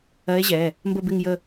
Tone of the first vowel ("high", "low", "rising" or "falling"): rising